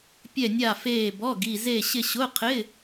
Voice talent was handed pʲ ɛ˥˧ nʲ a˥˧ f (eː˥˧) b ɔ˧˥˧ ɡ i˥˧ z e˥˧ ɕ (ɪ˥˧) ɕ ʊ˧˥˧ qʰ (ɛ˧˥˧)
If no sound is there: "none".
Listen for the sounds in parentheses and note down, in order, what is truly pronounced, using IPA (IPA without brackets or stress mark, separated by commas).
eː˥˧, ɪ˥˧, ɪ˧˥˧